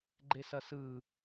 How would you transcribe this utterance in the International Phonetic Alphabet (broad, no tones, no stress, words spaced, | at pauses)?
ɡ͡ǃesʌsɯ